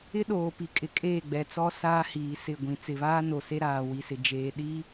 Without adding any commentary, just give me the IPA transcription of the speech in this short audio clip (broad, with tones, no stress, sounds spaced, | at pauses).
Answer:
ɪ˦ ɗ oː˨ p i˨ kʼ ɪ˨ kʼ eː˦˨ ɡ͡b ɛ˨ t͡s ɔ˦ s aː˦ h iː˨ s ɪ˦˨ ɡʷ ĩ˨ t͡s ɪ˨ β aː˦ n o˨ s e˦ ɾ aː˨ w i˨ s ɪ˨ d͡ʒ eː˨ ɗ i˦